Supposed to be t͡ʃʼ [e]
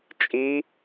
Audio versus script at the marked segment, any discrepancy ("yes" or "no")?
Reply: yes